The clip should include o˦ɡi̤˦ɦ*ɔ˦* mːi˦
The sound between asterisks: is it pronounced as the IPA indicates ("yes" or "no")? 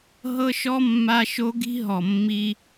no